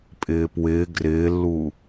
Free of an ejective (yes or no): no